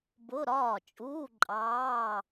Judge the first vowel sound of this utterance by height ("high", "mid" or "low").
high